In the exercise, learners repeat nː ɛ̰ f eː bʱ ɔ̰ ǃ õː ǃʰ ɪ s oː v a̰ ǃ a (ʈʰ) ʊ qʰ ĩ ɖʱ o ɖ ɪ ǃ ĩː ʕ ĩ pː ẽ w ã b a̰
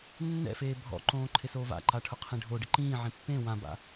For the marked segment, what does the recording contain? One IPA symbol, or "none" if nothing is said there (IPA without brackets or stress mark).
ʈʰ